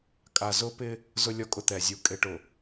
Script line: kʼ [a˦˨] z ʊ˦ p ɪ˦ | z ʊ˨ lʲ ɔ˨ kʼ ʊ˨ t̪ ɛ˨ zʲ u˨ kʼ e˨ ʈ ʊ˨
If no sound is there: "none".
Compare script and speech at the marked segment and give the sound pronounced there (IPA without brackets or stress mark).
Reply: a˨